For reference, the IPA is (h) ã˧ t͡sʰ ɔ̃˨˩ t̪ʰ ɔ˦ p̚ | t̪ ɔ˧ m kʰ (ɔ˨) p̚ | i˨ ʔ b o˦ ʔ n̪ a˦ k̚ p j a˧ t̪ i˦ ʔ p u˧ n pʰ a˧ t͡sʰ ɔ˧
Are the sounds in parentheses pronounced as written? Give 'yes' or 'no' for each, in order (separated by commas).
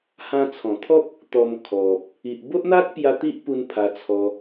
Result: yes, yes